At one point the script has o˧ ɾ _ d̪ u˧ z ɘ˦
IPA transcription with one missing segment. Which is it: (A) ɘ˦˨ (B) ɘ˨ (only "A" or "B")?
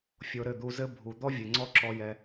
A